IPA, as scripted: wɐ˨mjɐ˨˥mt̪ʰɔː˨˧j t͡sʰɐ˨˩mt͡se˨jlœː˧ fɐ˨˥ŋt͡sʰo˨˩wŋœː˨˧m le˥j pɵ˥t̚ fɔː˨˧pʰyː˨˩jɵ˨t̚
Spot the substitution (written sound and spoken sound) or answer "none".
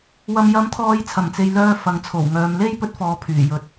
none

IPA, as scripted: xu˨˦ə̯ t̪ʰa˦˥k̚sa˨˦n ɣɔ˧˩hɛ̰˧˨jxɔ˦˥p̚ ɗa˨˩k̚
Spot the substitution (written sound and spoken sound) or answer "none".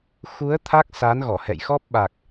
ɗ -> ɓ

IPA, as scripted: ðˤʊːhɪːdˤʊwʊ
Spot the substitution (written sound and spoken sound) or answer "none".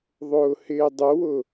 none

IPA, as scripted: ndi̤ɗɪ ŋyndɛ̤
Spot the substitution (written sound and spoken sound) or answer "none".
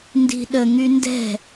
ɪ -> ə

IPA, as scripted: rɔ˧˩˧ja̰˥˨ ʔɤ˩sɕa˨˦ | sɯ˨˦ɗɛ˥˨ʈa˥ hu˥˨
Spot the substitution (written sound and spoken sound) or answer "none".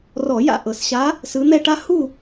ɗ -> n̪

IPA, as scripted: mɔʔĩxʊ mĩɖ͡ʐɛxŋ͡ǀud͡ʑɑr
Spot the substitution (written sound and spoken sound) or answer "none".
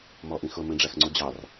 none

